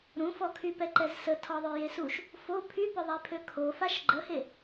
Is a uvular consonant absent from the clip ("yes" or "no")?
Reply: yes